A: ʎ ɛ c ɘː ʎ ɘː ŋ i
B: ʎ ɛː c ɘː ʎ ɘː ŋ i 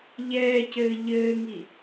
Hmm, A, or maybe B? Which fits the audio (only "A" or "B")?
B